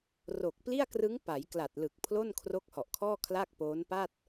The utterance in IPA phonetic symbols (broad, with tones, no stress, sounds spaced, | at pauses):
r o˨˩ k̚ p l i˥˩ a̯ k r ɯ˦˥ ŋ p a˩˦ j k l a˨˩ t̚ l ɯ˨˩ k̚ pʰ l o˥˩ n kʰ r o˦˥ k̚ h ɔ˨˩ ʔ kʰ ɔː˥˩ kʰ l a˥˩ k̚ p oː˦˥ n p a˥˩ t̚